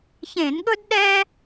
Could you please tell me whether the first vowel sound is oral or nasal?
nasal